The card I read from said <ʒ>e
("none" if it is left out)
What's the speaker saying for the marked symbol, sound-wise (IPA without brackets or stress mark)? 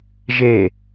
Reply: ʒ